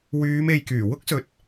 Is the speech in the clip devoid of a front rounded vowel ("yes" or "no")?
no